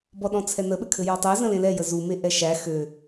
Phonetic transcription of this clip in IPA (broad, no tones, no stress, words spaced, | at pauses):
bɔɗɔ̃t͡sʰɛnə ɓɘkʰɘjɔtˤæ zə̃lẽlɛ jəzu meʔɛʃæ xø